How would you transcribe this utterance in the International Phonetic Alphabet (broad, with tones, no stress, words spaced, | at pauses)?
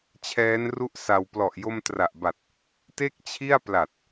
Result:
t͡ɕʰɛː˦˥nru˥˩ʔsa˧w plɔ˨˩ʔjo˧mtra˨˩ʔba˨˩t̚ | te˥˩k̚t͡ɕʰi˥˩a̯pla˨˩t̚